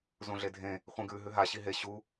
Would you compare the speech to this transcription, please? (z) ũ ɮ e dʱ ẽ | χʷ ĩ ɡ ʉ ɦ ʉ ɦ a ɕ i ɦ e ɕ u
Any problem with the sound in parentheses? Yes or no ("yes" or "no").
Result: no